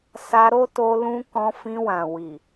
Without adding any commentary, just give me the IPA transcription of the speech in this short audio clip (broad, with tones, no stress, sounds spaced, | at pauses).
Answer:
s a˧ ɾ o˦ t o˧ l ũ˦ k ɔ̃˧ f ĩ˧ w ã˨ w i˨